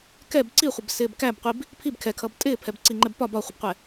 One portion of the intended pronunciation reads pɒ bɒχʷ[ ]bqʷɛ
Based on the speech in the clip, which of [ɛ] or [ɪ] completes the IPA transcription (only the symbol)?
ɪ